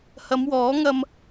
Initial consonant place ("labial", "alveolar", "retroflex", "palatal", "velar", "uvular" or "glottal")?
glottal